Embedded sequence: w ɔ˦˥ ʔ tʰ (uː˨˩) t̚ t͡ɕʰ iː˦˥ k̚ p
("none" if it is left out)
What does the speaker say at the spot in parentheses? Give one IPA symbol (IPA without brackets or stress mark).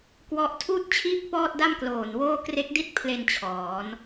uː˥˩